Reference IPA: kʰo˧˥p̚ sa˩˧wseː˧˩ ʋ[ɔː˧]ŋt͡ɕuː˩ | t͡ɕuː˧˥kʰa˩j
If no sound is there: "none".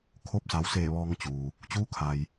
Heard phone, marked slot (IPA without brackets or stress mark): ɔː˧